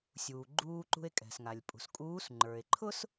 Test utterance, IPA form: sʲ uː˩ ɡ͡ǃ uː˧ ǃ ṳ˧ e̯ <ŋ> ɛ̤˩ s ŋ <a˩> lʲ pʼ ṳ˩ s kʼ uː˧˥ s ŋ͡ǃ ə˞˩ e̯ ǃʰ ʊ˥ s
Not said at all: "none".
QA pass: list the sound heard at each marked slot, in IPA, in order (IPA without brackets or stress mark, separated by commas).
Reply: kʼ, a˩